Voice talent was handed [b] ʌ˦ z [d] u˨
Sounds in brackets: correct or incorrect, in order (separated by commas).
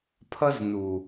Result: incorrect, incorrect